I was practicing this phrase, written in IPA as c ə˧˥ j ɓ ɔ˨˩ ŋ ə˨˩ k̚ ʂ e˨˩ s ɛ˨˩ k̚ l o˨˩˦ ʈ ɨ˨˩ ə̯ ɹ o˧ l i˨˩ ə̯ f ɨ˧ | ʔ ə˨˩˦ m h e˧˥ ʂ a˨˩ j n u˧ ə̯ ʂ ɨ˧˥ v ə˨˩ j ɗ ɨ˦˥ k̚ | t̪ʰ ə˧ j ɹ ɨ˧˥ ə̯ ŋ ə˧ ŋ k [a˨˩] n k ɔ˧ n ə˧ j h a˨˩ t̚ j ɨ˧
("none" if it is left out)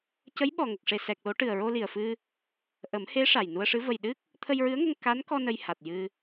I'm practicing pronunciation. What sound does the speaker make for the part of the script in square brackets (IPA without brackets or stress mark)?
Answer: a˧˥